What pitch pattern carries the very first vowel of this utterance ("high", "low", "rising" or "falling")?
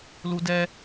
high